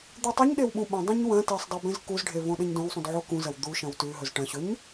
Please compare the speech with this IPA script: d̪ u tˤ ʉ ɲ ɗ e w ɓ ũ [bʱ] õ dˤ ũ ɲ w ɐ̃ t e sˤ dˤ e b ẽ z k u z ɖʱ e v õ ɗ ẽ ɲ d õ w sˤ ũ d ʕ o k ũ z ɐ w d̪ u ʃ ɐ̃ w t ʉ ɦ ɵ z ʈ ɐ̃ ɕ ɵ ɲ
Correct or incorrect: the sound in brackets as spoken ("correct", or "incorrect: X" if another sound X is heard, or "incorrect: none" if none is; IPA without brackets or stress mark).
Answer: incorrect: ɓ